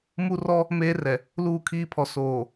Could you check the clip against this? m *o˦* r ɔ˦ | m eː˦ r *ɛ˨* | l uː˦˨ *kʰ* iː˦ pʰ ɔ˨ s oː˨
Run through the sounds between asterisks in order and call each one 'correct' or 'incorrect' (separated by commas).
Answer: incorrect, correct, correct